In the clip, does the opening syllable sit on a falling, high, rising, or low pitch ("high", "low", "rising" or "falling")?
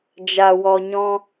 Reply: low